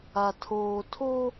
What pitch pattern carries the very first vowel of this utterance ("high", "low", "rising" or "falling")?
low